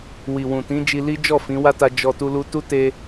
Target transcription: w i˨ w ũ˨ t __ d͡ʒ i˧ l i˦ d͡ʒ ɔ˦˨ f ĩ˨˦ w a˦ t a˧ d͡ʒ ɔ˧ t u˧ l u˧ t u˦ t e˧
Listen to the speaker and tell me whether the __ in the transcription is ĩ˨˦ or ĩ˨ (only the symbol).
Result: ĩ˨˦